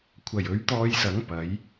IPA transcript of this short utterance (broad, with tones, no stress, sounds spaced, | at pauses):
kʷʰ ɐ˨˩ j ɵ˨˥ ɥ t̪ ɔː˧ j s ɐ˨˥ ŋ p ɐ˨˥ j